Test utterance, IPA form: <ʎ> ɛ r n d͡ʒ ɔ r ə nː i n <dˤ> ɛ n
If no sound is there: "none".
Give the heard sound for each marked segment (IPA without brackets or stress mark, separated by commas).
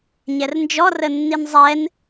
ɲ, zˤ